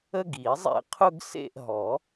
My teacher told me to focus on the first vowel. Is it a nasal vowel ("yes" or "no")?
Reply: no